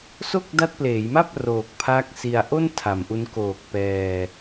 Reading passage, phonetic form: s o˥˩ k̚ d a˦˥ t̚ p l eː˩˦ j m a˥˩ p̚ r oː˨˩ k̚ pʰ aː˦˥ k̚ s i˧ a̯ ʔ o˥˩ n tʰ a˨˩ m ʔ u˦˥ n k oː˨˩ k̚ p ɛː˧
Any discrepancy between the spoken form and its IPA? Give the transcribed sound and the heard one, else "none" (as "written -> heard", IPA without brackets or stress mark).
none